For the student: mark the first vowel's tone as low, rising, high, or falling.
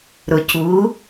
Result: low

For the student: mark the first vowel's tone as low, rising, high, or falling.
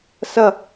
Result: falling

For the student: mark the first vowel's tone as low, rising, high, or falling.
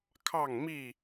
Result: falling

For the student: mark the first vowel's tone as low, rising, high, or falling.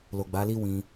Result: low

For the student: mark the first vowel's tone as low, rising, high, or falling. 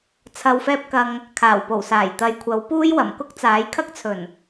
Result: low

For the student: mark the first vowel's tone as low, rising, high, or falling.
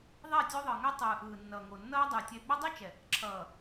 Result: falling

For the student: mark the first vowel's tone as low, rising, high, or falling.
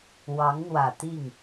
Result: rising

